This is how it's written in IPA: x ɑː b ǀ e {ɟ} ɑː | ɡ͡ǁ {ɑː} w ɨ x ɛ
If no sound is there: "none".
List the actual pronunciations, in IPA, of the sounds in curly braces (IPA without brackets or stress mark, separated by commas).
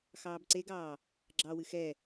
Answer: ɡ, ɑ